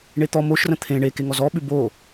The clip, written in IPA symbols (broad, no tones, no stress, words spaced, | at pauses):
ɳet̪ɔ moʃrə̃ t̪ʰẽ ɳeke ŋɔzɔɓʉ bo